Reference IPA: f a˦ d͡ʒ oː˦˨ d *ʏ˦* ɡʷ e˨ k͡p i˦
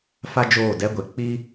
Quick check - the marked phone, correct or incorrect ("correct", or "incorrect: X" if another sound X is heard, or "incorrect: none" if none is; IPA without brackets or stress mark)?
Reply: incorrect: ɛ˦